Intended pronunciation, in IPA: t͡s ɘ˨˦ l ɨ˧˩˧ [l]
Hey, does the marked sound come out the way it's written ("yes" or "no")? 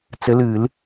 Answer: yes